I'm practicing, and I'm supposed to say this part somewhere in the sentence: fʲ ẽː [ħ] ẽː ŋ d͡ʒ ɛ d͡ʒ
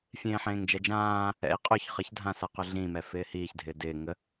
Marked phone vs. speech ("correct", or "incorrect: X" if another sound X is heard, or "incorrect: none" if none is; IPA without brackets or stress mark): correct